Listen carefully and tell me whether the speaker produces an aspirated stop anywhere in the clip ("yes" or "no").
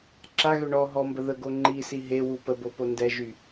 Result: no